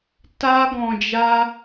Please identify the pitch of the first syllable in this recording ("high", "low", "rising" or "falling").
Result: high